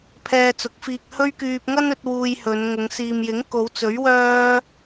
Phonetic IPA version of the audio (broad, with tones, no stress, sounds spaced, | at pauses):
pʰ ɛː˧ t͡s ʊ˨˥ k̚ f iː˧ k̚ h ɵ˥ ɥ k yː˧ p̚ ŋ ɐ˥ n ɵ˨˥ t̚ w uː˧ j h ɵ˨˧ n ŋ ʊ˨˧ ŋ s iː˨ m j ɪ˨˥ ŋ k o˨˧ w t͡s ɵ˨˥ ɥ w œː˥